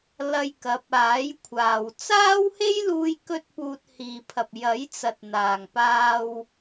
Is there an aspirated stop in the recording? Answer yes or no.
yes